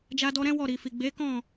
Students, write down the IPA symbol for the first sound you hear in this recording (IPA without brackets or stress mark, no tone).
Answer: d͡ʒ